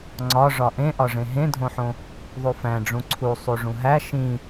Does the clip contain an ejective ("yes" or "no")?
no